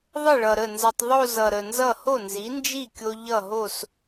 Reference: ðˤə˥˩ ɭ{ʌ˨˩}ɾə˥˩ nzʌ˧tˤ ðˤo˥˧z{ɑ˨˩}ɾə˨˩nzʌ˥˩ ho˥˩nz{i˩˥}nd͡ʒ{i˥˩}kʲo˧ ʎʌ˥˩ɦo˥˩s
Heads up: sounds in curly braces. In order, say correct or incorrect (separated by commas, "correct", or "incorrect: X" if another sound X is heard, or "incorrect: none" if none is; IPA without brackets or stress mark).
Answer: correct, incorrect: ʌ˨˩, correct, correct